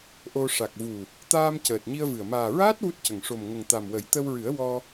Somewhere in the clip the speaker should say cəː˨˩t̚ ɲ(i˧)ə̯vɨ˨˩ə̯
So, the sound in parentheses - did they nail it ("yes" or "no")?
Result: yes